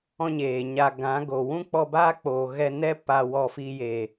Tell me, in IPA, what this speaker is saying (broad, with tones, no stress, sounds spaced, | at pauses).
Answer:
ɔ̃˦ ɲ eː˨ ɲ a˧ ɡ ã˨˦ ɡ o˨ w ũ˦ k͡p ɔ˧ b aː˦ k͡p oː˨ ɣ ɛ˧ n ɛ˦ p a˧ w ɔ˧ f i˧ j e˨